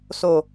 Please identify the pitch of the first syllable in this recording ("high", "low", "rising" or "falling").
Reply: low